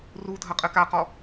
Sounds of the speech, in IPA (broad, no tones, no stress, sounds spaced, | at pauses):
r u dʱ ɐ qʼ ɘ k a q ɔ